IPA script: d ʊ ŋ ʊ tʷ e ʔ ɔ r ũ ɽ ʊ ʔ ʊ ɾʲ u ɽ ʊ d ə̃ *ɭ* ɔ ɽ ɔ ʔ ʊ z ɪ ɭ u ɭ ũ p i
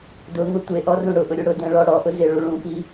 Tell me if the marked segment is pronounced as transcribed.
yes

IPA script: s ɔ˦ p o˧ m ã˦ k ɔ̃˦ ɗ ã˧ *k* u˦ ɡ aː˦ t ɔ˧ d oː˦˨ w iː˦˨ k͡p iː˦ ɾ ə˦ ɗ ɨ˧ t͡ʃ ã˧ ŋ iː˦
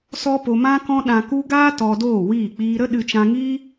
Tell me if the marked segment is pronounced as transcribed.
yes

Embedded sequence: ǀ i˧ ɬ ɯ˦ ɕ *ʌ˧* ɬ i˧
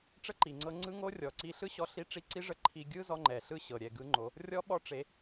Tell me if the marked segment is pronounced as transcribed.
no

